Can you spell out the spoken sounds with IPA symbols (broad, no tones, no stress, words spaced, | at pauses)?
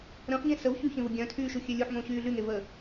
ɾə̃ːχɲẽ səv çyçẽvə ɡʲœ̃tʰyːʃuxʲø lʲuħŋõɕyː ɮyŋevəː